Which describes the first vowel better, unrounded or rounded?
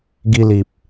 unrounded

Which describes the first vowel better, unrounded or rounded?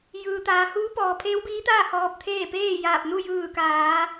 unrounded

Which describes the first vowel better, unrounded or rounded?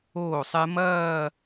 rounded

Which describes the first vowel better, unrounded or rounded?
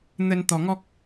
unrounded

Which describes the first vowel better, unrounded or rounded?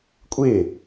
unrounded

